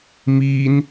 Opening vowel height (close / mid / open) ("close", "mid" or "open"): close